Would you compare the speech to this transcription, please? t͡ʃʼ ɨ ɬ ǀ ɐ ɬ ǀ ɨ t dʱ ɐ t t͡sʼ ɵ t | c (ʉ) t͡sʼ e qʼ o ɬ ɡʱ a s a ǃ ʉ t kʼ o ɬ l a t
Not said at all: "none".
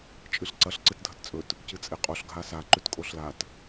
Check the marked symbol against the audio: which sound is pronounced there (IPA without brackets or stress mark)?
ɨ